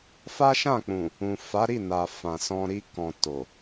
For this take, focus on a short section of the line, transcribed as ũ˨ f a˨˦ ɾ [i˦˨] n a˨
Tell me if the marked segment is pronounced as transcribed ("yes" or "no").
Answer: yes